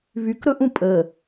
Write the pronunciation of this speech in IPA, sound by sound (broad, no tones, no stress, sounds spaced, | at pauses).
β y k ɾ ɵ ʔ ũ pʼ ə